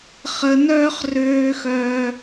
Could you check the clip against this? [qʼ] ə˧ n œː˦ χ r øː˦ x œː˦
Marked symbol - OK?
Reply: no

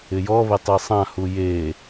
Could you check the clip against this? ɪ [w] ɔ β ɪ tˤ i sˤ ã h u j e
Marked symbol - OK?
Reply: no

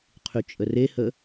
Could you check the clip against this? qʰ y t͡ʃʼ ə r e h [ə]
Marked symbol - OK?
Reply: yes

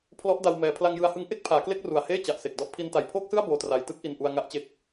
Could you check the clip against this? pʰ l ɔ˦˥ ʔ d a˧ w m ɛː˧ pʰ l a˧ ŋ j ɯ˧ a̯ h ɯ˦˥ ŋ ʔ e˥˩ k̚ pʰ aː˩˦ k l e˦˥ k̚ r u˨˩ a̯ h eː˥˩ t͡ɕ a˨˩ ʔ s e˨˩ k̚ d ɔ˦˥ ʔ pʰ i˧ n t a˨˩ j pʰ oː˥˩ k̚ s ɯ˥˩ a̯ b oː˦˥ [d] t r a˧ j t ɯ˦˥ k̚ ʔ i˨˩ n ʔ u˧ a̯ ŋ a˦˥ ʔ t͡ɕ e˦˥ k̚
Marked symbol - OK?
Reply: no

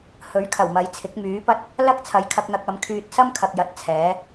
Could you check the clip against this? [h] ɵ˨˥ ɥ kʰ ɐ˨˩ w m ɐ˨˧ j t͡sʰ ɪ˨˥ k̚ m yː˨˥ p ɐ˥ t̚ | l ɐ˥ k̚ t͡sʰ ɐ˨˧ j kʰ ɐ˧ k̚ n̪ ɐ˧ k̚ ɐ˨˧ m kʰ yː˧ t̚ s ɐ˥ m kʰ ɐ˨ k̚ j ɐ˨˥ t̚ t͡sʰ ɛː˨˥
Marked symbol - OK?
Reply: yes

